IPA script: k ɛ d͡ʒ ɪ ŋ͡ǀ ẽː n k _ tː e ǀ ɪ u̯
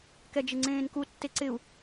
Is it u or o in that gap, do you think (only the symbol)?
u